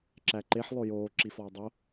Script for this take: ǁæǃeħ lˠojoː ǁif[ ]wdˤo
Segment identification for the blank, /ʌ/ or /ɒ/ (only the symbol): ɒ